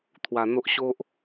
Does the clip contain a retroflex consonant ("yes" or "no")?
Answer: no